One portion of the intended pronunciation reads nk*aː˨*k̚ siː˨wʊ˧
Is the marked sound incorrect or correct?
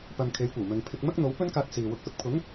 incorrect